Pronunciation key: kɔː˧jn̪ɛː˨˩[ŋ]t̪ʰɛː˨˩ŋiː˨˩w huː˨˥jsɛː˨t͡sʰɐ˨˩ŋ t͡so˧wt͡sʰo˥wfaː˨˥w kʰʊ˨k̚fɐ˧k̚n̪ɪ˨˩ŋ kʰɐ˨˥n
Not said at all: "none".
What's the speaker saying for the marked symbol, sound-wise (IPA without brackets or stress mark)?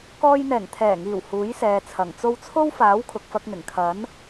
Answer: ŋ